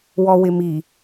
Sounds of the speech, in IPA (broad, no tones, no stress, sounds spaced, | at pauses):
w ɔ w ɪ m i